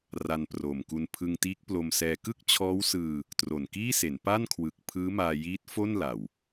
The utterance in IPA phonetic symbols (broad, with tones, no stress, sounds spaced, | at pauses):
r a˧ n p r oː˨˩ m k u˧ n pʰ ɯ˧ ŋ t iː˦˥ k̚ p l o˧ m s ɛː˧ k ɯ˥˩ k̚ t͡ɕʰ ɔː˦˥ w s ɯː˧ | t r o˨˩ n k iː˥˩ s e˩˦ n p a˥˩ n kʰ w ɯ˨˩ k̚ pʰ ɯː˦˥ m aː˧ j iː˦˥ t̚ f o˥˩ n l a˨˩ w